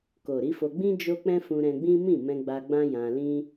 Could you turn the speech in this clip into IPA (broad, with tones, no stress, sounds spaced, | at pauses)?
k o˨ ɾ i˨˦ f o˧ ɡ͡b ĩ˦ d͡ʒ o˦ k͡p ɛ̃˦ f ũ˧ ɾ ɛ̃˧ ɡ͡b ĩ˦ m ĩ˦˨ m ɛ̃˧ ɡ͡b a˧ ɡ͡b ã˦ j ã˧ l ĩ˦